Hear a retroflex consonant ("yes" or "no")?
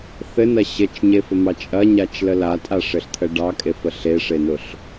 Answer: yes